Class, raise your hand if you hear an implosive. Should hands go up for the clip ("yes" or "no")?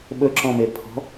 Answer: yes